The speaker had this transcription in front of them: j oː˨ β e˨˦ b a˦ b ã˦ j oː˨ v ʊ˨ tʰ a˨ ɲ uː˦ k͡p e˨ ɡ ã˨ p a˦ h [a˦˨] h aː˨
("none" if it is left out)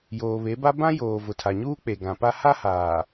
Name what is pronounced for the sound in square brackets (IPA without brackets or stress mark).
a˦